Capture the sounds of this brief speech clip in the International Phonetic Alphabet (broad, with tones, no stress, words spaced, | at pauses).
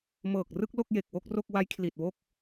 mɤː˨˩k̚rɯ˥˩k̚ lo˥˩k̚je˨˩k̚wo˥˩k̚ ro˥˩k̚ wa˦˥jkʰli˨˩t̚wo˥˩k̚